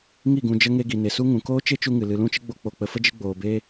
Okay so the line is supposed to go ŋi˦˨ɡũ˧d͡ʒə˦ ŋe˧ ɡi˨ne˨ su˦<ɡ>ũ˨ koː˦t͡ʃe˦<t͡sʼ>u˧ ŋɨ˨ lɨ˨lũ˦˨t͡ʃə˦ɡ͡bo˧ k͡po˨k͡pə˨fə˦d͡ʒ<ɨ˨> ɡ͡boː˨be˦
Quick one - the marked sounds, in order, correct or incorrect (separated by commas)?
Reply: incorrect, incorrect, incorrect